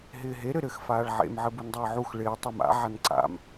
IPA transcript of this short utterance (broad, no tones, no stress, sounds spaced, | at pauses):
ɦ ɪː ɦ e ɾ ɘ ɾ ɘ x f aː ɭ ʕ ḛ m ʕ ɘ b u n dˤ ɪː ʕ u x ɭ ɪː tˤ e m a̰ ʕ a n ǀ a̰ m